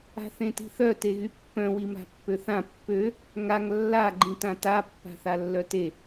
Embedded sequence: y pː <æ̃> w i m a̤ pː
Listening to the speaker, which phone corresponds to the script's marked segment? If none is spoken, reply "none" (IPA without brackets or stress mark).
œ̃